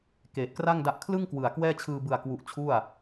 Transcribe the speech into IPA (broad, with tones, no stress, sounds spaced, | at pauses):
k eː˨˩ t̚ k r a˥˩ ŋ d a˦˥ ʔ kʰ l ɯ˥˩ ŋ k w ɯ˨˩ a̯ k w ɛː˥˩ t͡ɕʰ ɯː˧ b ɯ˨˩ a̯ k w u˨˩ ʔ t͡ɕʰ u˥˩ a̯